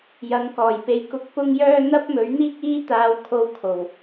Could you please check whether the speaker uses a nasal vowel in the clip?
no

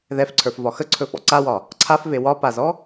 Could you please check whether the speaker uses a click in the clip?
yes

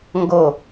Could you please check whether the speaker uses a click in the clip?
no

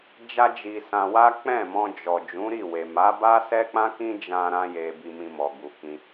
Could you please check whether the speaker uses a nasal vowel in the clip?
yes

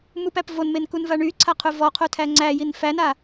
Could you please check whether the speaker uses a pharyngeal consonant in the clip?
no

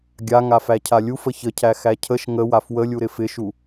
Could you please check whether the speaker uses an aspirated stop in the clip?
yes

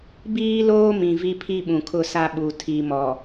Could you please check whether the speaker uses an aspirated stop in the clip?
yes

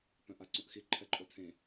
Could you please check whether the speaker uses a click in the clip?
yes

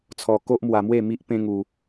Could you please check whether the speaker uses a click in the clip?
no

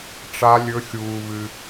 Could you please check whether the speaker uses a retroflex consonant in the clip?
yes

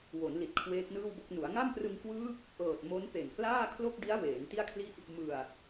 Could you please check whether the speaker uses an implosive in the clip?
no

